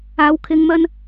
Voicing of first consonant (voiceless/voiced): voiced